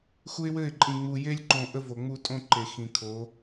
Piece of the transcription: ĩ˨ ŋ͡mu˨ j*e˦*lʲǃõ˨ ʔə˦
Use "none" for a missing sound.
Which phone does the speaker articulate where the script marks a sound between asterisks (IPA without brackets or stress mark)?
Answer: e˦